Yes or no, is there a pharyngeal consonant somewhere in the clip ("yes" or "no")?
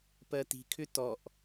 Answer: no